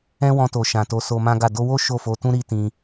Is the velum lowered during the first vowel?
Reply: yes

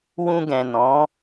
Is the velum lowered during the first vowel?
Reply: yes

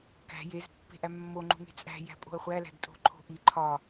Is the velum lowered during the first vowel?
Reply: no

